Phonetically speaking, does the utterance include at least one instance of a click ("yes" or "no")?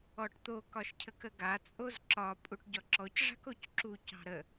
yes